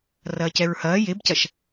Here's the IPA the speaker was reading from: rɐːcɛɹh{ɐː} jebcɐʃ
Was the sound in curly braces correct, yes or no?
yes